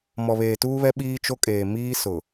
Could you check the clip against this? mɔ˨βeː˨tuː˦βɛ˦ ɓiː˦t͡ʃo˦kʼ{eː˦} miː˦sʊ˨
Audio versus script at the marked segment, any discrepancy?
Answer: yes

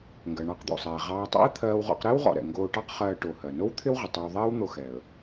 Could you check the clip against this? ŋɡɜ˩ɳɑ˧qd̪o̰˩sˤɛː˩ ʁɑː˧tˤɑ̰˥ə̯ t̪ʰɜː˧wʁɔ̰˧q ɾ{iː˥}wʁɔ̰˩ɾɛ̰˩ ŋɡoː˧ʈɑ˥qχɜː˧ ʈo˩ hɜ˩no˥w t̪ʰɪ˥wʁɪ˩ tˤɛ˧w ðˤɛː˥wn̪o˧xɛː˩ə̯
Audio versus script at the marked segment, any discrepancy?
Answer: yes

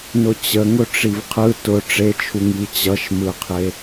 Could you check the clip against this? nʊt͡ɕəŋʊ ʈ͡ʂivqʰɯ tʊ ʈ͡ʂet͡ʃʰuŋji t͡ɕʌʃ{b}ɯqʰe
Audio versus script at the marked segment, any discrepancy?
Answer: yes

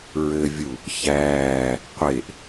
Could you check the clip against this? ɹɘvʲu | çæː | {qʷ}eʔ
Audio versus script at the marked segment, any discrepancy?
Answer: no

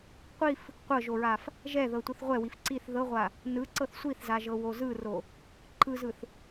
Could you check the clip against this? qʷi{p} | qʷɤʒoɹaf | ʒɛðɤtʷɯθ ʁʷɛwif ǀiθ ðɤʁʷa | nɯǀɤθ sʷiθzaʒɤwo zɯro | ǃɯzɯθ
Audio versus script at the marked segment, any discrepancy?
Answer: yes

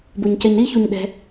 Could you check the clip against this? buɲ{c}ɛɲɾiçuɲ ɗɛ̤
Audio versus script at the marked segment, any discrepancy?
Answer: no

